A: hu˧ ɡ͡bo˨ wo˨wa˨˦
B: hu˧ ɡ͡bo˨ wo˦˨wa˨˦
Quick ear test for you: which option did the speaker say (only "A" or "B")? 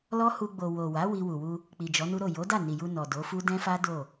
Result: A